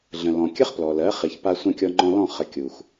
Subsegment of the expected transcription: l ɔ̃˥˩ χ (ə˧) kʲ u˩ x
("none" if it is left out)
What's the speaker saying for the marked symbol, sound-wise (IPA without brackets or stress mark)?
ə˩˥